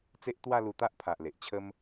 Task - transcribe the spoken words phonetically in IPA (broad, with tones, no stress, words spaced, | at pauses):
t͡se˦ʔt̪wa˥˧lu˧ t̪a˦ʔpʰa˨ʔ le˨ʔ t͡ɕʰə˦m